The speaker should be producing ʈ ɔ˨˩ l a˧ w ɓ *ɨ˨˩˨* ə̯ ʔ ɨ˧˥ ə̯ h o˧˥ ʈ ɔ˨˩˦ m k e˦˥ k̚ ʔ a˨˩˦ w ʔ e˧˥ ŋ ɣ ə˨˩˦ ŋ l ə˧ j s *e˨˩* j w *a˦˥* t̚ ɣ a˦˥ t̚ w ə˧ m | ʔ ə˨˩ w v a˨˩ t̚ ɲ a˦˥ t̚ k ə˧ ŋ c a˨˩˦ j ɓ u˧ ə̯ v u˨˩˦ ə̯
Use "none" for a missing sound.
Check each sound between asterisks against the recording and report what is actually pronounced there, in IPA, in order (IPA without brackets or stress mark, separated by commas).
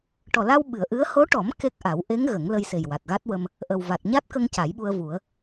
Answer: ɨ˨˩˨, e˨˩, a˨˩